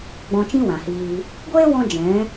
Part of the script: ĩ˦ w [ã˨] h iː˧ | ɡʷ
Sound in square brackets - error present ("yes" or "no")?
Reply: no